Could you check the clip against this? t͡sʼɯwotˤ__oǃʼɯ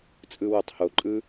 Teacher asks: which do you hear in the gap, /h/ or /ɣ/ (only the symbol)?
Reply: h